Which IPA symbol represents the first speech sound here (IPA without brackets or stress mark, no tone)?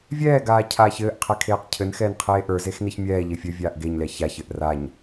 vʲ